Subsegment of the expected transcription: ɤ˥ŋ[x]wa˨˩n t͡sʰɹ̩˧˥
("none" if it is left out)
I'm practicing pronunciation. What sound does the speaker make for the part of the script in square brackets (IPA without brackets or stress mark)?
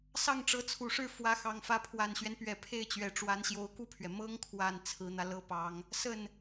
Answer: kʰ